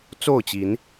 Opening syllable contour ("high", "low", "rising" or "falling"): falling